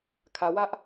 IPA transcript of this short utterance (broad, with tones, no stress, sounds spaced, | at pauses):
kʰ ä˨ w ä˦ ʔ